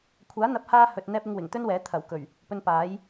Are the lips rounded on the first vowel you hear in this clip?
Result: no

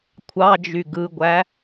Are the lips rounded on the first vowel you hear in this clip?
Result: no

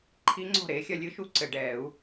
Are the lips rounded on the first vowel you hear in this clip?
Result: no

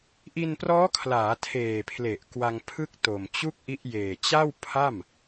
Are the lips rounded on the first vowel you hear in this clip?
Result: no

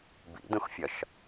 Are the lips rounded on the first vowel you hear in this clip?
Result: no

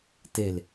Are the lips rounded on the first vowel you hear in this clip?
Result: no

